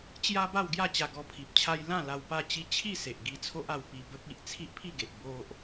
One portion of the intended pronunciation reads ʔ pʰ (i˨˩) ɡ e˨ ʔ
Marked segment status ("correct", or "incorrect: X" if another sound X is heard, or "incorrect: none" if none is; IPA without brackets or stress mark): incorrect: i˥˧